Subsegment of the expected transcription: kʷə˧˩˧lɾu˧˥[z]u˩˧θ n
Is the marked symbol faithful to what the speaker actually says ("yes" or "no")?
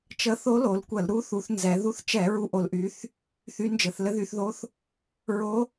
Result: no